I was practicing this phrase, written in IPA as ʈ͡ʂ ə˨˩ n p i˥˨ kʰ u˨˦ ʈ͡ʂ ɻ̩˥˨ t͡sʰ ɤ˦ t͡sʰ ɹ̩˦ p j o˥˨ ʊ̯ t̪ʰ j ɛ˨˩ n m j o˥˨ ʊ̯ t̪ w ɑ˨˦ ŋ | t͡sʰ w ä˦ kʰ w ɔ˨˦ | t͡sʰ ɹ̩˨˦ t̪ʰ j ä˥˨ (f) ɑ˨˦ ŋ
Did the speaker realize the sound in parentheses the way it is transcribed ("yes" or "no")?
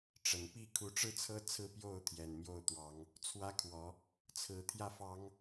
yes